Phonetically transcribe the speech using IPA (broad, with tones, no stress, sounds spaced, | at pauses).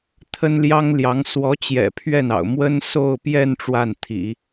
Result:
t̪ʰ ə˥ n l j ɑ˥ ŋ l j ɑ˧˥ ŋ s w ɔ˧˥ t͡ɕ j ɛ̰˨˩ pʰ ɥ ɛ˥˩ n ɑ̰˨˩ ʊ̯ m w ə˥ n s o˥˧ ʊ̯ p j ɛ˥˧ n ʈ͡ʂ w a˥˩ n t̪ʰ ḭ˨˩˦